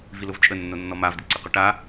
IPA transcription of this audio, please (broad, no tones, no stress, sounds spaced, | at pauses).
v i l ʊ v t͡ʃʼ ə nː o nː ɔ m a v d ɪ ǀ ɪ q ʊ ʈ a